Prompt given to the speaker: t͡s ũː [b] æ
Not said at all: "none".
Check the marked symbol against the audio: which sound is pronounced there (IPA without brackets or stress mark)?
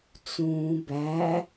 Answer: b